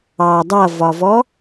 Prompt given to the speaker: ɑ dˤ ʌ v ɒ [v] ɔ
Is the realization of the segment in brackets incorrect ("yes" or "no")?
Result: no